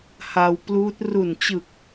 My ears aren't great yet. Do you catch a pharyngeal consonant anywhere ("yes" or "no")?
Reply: no